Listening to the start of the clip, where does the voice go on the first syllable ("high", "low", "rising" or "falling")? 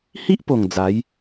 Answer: high